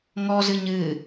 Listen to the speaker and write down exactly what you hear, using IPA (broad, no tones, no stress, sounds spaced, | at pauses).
ŋ ɔ z ɨ ɲ ɨ